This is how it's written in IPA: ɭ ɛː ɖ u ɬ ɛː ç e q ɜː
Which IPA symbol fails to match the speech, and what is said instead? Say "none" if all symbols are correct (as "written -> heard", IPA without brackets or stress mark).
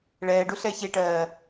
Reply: q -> ʈ